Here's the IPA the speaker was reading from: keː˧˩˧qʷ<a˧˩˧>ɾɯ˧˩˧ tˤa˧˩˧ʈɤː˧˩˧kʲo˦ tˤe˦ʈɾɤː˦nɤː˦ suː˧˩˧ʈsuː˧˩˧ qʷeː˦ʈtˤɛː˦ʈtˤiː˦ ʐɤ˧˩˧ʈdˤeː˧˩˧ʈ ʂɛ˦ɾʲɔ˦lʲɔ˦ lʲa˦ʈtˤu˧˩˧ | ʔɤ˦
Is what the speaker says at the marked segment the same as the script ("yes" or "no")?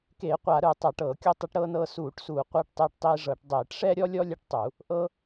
yes